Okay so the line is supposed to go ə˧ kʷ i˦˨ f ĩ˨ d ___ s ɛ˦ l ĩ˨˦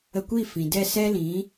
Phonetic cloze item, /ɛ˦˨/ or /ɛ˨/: ɛ˦˨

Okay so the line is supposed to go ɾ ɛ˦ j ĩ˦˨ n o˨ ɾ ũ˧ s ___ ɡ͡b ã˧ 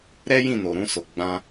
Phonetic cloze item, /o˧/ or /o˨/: o˨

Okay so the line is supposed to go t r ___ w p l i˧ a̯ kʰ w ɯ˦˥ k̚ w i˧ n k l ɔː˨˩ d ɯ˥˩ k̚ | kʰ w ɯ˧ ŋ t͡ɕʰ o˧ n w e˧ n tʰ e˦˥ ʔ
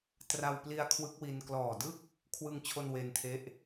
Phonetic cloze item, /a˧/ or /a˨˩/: a˧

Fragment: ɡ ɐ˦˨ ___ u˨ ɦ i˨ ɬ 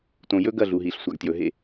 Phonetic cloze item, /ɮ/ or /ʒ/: ɮ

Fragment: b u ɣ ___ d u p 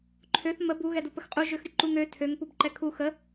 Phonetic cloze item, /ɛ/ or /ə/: ɛ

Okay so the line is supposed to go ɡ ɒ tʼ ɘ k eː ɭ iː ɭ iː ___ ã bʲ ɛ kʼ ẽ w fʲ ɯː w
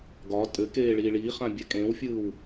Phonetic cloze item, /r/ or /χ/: χ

